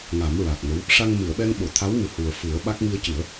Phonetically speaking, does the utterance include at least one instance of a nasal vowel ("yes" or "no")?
no